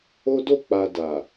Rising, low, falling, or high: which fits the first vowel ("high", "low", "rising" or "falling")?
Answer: high